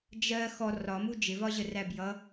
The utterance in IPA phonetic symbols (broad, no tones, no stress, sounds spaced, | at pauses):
d͡ʒ ɜ x ɔ r ɒ m u d͡ʒ ɪ v ɒ ʑ ə r æ b j ʌ